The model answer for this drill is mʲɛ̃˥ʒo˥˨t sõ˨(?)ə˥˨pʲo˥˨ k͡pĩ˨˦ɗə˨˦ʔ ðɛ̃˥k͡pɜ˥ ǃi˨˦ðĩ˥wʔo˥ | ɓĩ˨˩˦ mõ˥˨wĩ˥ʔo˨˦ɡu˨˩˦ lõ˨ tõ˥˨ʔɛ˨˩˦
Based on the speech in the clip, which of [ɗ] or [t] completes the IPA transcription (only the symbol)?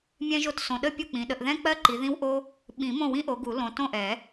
ɗ